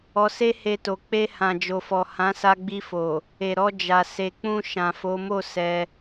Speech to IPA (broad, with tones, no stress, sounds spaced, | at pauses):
ɔ˧ s e˦ h e˧ t o˨ k͡p e˧ h ã˨ d͡ʒ o˨ f ɔ˨ h ã˨˦ s a˧ ɡ͡b i˧ f o˨ | e˨ ɾ ɔ˧ d͡ʒ a˨ s e˨ k͡p ũ˧ ʃ ã˨ f o˨˦ m o˦˨ s ɛ˧